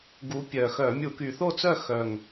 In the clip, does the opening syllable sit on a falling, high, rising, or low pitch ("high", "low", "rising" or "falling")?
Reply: rising